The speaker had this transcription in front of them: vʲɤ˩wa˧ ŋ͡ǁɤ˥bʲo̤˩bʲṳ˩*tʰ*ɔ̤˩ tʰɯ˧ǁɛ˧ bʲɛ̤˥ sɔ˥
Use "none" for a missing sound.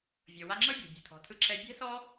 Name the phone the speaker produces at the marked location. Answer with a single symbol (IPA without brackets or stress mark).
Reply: tʰ